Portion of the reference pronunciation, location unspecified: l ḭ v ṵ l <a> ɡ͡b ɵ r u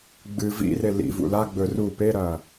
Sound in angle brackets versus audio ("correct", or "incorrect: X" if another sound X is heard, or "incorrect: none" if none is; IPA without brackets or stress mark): correct